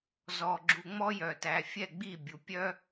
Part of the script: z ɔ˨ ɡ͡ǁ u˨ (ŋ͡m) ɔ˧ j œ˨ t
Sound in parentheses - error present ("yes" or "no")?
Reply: no